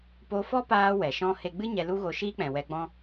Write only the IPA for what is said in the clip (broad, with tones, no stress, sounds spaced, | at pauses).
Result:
p o˧ f ɔ˦ p aː˧ w ɛ˨ ʃ ɔ̃˦ h e˦ ɡ͡b ɨ˦ ɲ ɛ˧ l u˦ ɣ o˧ ʃ iː˦ k͡p ɛ̃˨ w ɛ˧ ɡ͡b ɔ̃˦